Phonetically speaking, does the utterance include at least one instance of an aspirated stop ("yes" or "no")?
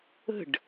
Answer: no